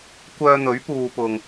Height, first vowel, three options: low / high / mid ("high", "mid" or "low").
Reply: mid